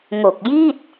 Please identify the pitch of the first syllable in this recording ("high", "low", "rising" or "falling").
low